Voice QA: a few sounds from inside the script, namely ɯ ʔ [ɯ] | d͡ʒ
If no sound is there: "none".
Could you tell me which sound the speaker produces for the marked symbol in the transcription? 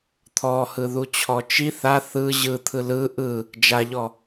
ɯ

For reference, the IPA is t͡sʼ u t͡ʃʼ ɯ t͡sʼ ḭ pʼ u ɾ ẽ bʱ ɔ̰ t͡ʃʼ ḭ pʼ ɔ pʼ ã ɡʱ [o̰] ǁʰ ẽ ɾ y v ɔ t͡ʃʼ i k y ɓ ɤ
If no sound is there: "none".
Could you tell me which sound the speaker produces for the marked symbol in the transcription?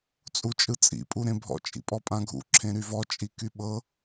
ṵ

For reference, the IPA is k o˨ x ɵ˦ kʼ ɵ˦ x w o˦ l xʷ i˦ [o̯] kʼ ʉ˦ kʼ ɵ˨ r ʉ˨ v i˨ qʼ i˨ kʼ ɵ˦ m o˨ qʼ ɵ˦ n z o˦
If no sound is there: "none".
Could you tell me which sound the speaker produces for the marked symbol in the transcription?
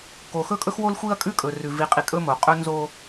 ɐ̯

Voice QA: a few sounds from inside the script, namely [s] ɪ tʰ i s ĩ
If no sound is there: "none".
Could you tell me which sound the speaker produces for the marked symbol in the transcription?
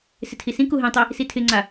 s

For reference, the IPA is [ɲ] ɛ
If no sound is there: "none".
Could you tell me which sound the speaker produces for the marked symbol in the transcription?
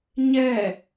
ɲ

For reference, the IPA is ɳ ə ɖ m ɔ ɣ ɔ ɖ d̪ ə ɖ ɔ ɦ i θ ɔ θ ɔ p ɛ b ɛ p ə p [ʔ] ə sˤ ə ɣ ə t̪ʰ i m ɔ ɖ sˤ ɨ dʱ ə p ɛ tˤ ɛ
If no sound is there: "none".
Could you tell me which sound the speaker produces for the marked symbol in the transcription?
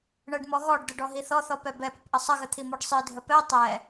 ʔ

